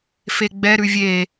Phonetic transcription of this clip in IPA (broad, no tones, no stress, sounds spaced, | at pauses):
f e ɡ͡b ɛ ɾ ʉ vʲ e